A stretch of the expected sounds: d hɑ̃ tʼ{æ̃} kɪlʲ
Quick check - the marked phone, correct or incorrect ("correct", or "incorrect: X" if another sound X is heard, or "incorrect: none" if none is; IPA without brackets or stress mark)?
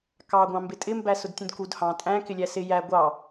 correct